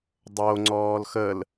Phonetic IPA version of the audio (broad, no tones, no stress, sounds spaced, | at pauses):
dˤ o ŋ͡ǀ ɔː l x ə l